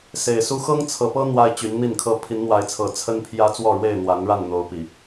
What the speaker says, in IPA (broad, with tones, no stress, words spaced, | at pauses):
se˨˩ɪ̯su˦ xɤ˦ŋt͡sʰɤ˨˩pɤ˦ n̪wa˦ɪ̯t͡ɕy˨˦nn̪i˥˨nkʰɤ˦ pʰi˨˦nn̪wa˨˦ɪ̯t͡sʰɤ˨˩ t͡sʰə˦npʰjä˦ t͡swɔ˥˨ɻwe˥˨ɪ̯n̪wa˨˦nɻa˥˨n n̪o˨˦ʊ̯pi˨˩